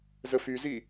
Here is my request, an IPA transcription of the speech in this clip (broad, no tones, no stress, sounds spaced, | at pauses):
z ə f y z i